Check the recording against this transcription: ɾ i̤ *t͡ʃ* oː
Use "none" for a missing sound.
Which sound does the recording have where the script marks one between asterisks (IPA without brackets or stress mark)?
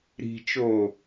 t͡ʃ